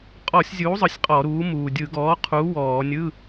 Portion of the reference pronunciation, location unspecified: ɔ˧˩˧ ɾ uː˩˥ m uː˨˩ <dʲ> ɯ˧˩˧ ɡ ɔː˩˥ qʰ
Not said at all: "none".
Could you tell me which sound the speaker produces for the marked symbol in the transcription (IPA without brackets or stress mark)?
dʲ